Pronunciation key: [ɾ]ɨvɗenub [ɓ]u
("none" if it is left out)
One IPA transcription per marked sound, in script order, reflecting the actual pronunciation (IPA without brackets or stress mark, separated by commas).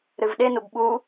ɾ, ɓ